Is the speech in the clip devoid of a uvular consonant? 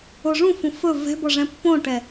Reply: yes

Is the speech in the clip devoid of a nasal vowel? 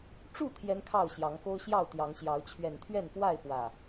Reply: yes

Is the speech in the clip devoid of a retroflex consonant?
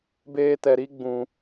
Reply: yes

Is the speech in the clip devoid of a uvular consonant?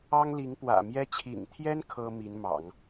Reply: yes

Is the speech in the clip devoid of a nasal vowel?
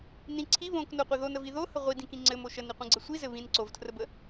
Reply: no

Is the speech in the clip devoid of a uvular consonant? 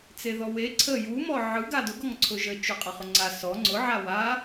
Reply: no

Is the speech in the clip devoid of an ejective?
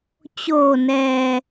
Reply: yes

